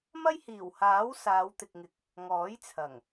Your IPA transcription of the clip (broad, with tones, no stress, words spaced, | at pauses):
mɐ˥jhiː˨˩whaː˨˥w saː˨˧wt̪ɪ˨k̚ŋɪ˨˥k̚ | ŋɔː˨˥jt͡sʰɐ˨˩ŋ